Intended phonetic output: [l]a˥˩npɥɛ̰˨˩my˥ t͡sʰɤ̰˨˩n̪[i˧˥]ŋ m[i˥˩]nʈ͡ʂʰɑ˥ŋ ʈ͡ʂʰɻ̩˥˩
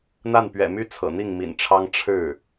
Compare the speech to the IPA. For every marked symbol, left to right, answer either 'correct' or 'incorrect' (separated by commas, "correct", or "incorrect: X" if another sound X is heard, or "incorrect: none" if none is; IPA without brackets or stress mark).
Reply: incorrect: n̪, incorrect: i˥˩, incorrect: ḭ˨˩